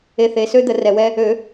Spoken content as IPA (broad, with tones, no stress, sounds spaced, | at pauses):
e˧ θ e˩˧˩ s ø˥ d̪ ə˨˩˦ r ɛ˩ w ɛ˧ | ø˨˩˦